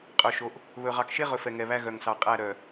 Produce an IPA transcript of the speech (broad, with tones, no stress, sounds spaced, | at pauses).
qʼ œ˨ ʃ o˨ ʔ | β ɵ˨ ʁ ɑ˨ k ʃ e˦ ʁ ɵ˨ f ɛ˨ ŋ ɛ˨ β æ˦ ɣ œ˨ ŋ s ɑ˨ qʼ æ˦˨ ɾ œ˨